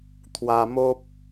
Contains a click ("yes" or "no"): no